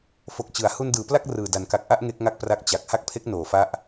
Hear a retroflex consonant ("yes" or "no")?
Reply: no